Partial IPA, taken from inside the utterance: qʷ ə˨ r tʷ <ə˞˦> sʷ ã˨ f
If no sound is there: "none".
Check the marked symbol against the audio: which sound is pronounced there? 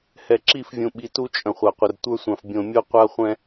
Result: ə˞˦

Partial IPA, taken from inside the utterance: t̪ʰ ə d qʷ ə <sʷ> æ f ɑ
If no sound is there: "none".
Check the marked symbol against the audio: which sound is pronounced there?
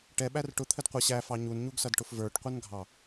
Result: ɕ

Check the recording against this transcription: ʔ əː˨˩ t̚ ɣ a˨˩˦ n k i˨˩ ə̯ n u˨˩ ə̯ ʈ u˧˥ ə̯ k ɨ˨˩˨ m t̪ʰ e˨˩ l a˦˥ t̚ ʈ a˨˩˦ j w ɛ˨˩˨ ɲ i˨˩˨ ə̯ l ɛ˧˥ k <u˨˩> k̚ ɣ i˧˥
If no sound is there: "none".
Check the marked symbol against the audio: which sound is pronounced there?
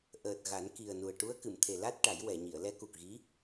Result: u˨˩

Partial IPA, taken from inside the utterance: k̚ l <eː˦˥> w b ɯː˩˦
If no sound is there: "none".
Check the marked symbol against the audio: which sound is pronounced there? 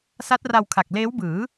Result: eː˦˥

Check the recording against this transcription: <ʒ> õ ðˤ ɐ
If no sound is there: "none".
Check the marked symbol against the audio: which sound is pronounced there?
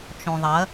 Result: t͡ʃ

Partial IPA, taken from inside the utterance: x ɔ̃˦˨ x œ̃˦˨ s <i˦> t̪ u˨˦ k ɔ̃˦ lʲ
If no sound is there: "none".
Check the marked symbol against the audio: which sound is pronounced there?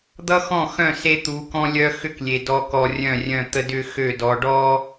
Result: e˦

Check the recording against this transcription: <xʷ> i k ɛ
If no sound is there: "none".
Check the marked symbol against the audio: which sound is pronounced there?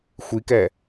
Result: xʷ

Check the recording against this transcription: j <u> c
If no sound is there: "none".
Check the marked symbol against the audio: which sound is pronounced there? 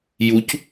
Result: u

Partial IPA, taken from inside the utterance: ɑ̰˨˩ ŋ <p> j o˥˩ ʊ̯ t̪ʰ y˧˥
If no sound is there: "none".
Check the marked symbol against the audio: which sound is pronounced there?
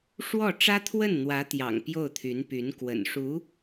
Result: p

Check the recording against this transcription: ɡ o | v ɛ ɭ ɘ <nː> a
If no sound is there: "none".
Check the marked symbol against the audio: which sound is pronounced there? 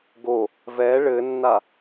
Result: nː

